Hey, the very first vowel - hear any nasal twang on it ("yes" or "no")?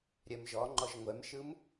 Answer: no